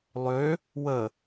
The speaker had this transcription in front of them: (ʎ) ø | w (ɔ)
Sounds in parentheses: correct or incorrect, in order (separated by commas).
incorrect, incorrect